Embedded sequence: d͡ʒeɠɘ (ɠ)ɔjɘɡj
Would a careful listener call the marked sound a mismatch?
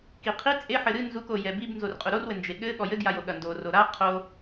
no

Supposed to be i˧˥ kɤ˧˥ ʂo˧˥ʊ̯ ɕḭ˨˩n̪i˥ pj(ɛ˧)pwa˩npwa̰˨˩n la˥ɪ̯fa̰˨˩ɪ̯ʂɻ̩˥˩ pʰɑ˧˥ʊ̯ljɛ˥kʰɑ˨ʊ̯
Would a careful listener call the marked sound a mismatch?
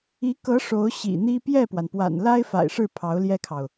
yes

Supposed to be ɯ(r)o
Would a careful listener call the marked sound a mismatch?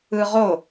yes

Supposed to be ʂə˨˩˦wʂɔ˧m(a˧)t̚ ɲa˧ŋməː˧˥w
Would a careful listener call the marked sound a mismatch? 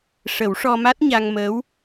yes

